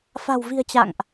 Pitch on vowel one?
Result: low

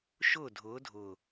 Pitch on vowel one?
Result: falling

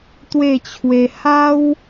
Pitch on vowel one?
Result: falling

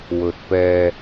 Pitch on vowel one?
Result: low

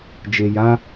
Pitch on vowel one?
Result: low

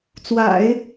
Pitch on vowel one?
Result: low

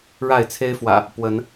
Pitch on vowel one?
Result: falling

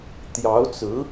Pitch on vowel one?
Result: rising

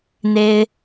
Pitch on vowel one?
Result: high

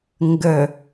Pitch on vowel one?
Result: low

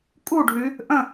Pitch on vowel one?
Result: falling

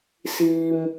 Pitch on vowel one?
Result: low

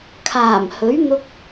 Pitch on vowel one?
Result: low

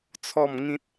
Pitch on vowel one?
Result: falling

